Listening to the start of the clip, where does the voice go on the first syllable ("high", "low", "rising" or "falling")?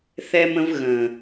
high